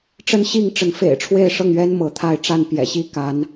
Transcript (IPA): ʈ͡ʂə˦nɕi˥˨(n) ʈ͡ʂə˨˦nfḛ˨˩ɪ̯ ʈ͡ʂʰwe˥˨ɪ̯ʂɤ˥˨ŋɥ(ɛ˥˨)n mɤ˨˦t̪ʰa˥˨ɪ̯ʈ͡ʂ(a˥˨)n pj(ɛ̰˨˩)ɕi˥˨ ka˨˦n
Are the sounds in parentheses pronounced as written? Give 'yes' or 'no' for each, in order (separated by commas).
no, no, yes, yes